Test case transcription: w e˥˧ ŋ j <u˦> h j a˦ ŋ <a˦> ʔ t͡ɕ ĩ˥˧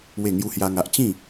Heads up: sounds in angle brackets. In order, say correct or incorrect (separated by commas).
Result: correct, correct